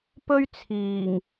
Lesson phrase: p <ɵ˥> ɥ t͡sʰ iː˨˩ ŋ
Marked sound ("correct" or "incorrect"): correct